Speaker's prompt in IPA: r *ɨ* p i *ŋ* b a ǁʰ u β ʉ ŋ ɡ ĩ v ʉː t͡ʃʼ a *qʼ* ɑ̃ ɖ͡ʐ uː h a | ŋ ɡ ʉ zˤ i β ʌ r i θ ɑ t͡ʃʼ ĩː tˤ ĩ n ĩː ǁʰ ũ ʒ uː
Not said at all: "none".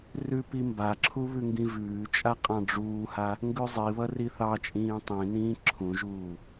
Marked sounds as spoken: ʉ, m, qʼ

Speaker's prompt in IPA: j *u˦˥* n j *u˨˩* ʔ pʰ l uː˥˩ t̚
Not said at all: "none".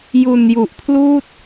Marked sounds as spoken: u˨˩, u˨˩

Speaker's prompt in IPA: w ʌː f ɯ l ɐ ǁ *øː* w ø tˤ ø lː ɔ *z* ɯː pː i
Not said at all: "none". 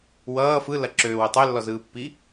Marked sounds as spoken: øː, z

